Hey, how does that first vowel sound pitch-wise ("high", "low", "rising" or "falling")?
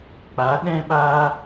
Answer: rising